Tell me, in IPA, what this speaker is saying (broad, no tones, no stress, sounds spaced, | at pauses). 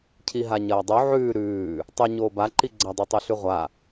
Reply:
cʰ i ɦ a ɲ ɐː dˤ u ʕ ʉː ɾ ʉː | tˤ ɵ ɲ oː b a ǃ i ɡ͡ǀ ɐ dˤ ɵ tˤ u ɬ ʉ ʁʷ a